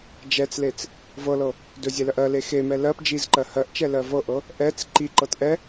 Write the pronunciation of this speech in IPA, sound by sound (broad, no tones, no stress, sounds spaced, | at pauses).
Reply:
d͡ʒ ɛ t͡s l e t͡s | v ɤ l ɤ | d ɵ zʲ ɛ l ɜ ʔ ɜ l e x e m ɛ l ɜ p d͡ʒ i z ǃ ɜ h ɜ ʔ t͡ʃ ɛ l ɜ v ɤ ʔ ɤ | ʔ ɛ t͡s ǃ i ǃ ɤ t ʔ ɛ